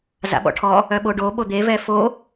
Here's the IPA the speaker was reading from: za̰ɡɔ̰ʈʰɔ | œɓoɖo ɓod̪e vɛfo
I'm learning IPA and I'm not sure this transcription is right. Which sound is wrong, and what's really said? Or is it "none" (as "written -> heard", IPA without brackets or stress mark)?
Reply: ɡ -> ɓ